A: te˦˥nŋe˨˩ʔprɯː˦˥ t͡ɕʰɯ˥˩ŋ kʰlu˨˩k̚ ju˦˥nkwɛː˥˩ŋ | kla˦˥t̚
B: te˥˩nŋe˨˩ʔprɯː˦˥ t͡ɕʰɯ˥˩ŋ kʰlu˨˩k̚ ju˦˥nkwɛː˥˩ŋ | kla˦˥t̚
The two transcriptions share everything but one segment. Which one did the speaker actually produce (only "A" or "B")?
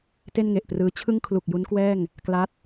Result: B